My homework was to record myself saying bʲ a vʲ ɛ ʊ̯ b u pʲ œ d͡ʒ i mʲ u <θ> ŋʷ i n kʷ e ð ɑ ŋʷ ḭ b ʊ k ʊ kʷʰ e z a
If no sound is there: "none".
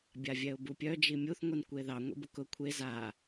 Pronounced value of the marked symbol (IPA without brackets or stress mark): θ